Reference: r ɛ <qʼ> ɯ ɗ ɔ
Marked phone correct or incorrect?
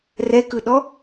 incorrect